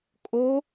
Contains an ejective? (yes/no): yes